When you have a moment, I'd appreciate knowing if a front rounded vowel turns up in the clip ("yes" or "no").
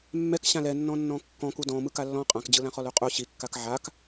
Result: no